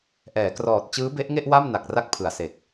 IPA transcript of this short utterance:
ʔ ɛː˩˦ k r ɔː˨˩ t̚ t͡ɕ ɯː˦˥ b e˦˥ ʔ ŋ e˥˩ ʔ w a˥˩ m n a˨˩ k̚ r a˦˥ k̚ pʰ ɯ˩˦ a̯ s e˨˩ k̚

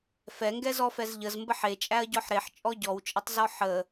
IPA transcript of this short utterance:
f ɛ ŋ ɡ ɛ z ɔ f ɛ z ʎ ə z m b ə ħ e t͡ʃʼ æ ɐ̯ ɟ ɔ ħ ɾ e ħ t͡ʃʼ ɔ ɟ ɔ w t͡ʃʼ ə tˤ z ɔ ħ ə

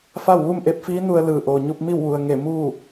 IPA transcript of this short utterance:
f a˥˨ w ʋ u˥˨ m ʔ e˧˥ p̚ f iː˧˥ n u˧ ə̯ l ɯː˧˩ ʔ oː˩ ɲ u˧ p̚ m i˥˨ w ʋ u˩ ə̯ ŋ e˧˩ m uː˥˨

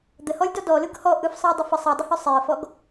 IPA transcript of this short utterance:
d̪ ə h ɔ lʲ d ɔ d ɔ l ɯ ɡ h ɔ ʔ ɯ f sˤ ɯ ə̯ dˤ ə f ə sˤ e dˤ ə h œ sˤ e ə̯ f ɔ ɡ

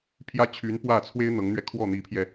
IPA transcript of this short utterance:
pʰ j ä˥˩ t͡ɕʰ y˧˥ n p w ä˥˩ t͡sʰ w e˥ ɪ̯ n̪ ɤ˧˥ ŋ n̪ ɥ ɛ˧ kʰ w ɔ˥˩ n̪ i˧˥ pʰ j ɛ˧

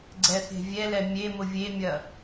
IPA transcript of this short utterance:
ɡ͡ǀ ɛ θ e̤ vʲ ɛ l ɛ mʲ e m ʊ vʲ e mʲ ɐ

